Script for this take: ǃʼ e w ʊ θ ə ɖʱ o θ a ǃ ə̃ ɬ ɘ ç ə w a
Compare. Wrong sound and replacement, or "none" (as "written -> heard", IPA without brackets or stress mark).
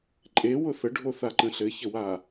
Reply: none